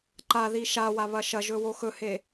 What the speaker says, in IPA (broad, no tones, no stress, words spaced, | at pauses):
ǃaði ʃawaβɐ ʃɐʒɵwo xɵhe